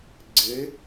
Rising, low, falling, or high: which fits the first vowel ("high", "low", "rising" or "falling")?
rising